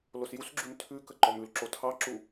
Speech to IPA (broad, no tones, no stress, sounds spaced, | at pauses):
l o s j u s ɡ͡ǁ ʉ m tʰ ʉ k ə ǃ ɔ m ʉ l ǁ o tʰ ɑ ǁ u